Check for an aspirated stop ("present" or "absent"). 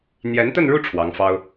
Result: present